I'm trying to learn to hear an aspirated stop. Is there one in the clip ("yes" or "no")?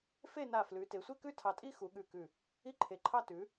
yes